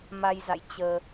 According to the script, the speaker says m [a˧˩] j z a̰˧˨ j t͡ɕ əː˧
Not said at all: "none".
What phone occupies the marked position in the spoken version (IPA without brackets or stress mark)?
a˧